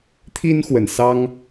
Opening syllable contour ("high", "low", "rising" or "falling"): high